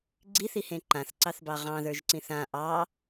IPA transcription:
ɡ͡ǀ i θ i h ẽ ǃ ã θ ǀ ɑ θ b ɑ ʁ ɑ̃ ð ə˞ ʒ ǀ ĩ θ ã ʔ ɑ

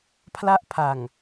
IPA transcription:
pʰ l a˥˩ ʔ pʰ a˨˩ ŋ

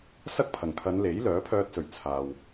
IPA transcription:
s ɐ˥ k̚ pʰ ɐ˨˩ ŋ kʰ ɐ˨˧ n l e˨˥ j l œː˨˥ pʰ œː˧ t̚ s ɵ˨˩ ɥ t͡sʰ aː˨ w

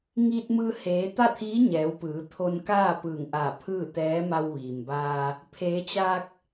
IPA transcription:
ŋ iː˧ t̚ m ɯː˧ h eː˩˧ t̪ a˥˨ t̪ʰ iː˧˥ ɲ ɛː˩˧ w p ɯː˩˧ t̪ʰ o˧ n k aː˥˨ p ɯː˧˩ ŋ ʔ a˧˩ pʰ ɯː˥˨ t̪ ɛː˧˥ m a˧ w ʋ iː˩ m b aː˧ | pʰ eː˩˧ t͡ɕ aː˧ k̚

